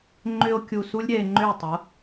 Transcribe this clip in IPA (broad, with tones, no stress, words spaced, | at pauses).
ŋ͡ǃʏ˧o̯ kʲu˧su˥lʲɾʲɛ˧e̯ ŋ͡ǃʏ˥˩e̯tˤo˩˥